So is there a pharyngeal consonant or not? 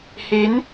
no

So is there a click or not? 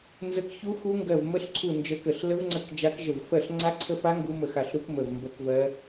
yes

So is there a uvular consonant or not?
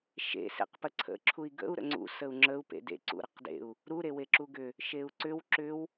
yes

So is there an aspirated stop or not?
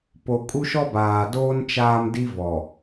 no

